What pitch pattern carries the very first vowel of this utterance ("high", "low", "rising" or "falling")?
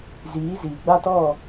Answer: rising